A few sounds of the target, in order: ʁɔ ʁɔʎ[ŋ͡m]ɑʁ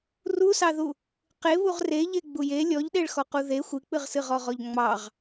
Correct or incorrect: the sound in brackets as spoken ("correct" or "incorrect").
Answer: correct